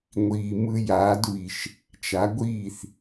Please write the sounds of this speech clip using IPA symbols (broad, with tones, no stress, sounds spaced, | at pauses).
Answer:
ŋʷ iː˩ m ɯ˧ j aː˩˥ d β i˩ ʃ | t͡ʃ a˩˥ ɡʷ iː˥˩ θ